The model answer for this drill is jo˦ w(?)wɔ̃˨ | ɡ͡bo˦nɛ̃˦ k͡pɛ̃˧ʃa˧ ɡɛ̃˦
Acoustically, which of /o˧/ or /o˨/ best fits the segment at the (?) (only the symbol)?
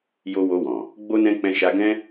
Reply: o˧